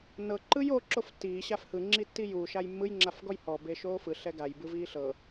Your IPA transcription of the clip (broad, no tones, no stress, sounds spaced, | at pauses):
n ɤ ǃ ɯ j o ǁ o f tː iː ɕ a f h ɯ ŋ͡ǁ i tː i j uː ʃ a j mː ɯ j ŋ͡ǁ a f ɡ ɔ j h ɔ b e ʃ oː f ɯ ɬ ɛ ɡ a j b ɯ v iː ɬ ɤ